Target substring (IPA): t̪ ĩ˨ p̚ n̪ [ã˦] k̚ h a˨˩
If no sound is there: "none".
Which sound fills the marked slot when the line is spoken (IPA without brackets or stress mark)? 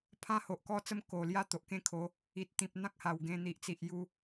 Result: ã˦